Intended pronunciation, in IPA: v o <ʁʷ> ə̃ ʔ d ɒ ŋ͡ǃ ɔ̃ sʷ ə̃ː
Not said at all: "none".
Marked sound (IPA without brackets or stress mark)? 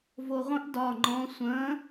ʁʷ